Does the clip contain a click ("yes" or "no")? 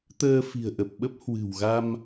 no